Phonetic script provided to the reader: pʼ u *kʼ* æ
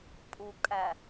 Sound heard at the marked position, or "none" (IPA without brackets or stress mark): kʼ